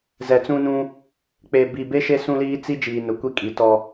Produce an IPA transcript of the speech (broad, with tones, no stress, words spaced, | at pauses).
zɛ˨t͡sũ˦nũ˦ | k͡pe˨ bi˨be˦ ʃe˦sũ˦liː˦ t͡si˦ d͡ʒiː˨nʊ˨kʷi˦ kʼi˨tɔ˦